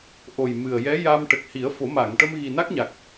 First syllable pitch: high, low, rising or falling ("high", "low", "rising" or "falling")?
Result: low